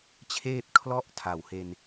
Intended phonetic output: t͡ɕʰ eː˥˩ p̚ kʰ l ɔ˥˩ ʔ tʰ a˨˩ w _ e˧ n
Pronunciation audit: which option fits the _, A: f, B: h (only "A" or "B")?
B